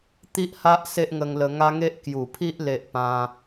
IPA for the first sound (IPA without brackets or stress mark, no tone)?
t̪